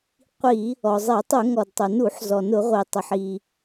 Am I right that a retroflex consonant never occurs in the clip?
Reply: yes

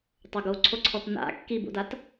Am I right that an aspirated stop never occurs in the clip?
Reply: no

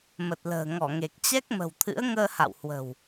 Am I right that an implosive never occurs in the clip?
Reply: yes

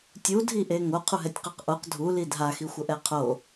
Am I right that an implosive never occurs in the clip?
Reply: yes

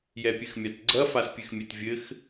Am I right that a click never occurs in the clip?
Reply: no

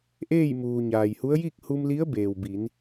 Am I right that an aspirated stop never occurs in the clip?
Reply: yes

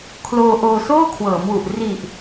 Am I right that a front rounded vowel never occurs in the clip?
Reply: yes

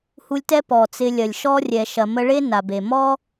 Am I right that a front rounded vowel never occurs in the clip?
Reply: yes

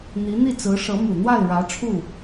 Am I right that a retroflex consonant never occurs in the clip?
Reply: no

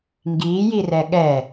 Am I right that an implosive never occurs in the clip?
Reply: no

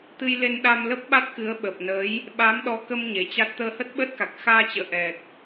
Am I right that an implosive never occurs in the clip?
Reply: no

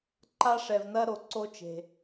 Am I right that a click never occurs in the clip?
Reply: no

